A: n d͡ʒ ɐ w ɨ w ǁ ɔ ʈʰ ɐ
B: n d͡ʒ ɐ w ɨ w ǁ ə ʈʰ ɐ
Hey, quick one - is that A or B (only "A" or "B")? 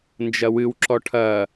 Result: A